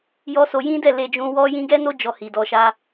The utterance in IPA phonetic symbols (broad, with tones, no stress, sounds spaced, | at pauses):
j ɔ˦ s o˧ j ĩ˦ d ɛ˦˨ l e˧ d͡ʒ ũ˧ w ɔ˦ j ĩ˦ ɡ ɛ˦ n o˦ d͡ʒ ɔ˧ h i˨ d ɔ˧ ʃ a˦